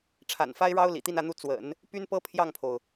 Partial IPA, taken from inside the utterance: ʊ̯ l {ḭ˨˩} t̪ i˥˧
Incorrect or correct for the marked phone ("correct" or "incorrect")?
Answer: correct